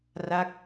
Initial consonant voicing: voiced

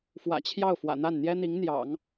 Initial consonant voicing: voiceless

